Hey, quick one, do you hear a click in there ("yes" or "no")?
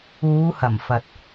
no